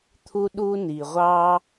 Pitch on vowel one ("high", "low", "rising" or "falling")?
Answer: high